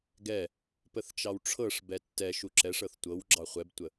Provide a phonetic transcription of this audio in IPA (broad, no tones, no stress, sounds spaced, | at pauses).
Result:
ɡ ɛ | p ə θ t͡ʃ ɑ w ʈ͡ʂʰ ɤ ʂ b ɛ tː ɛ ʃ u ǁ ɛ ʂ ɤ θ tʷ ɤ w ɡ͡ǁ ɑ χʷ ɛ b tʷ ə